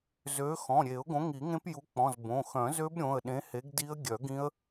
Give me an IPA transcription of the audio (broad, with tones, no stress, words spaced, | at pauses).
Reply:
zø˨˥ xɔ̃˩˧˩ɾʲe˨˩˦ʊ̯ ɡõ˨˥ŋi˨˩˦ŋẽ˦˥p ju˨˥k͡pɔ̃˩˧˩z bõ˩˧˩ xœ̃˨˩˦zø˦˥b ɾʲõ˩˧˩ə̯ ɗẽ˨˥he˨˥ɡdi˦˥ə̯ ɡʲœ˨˩˦ɡĩ˦˥ə̯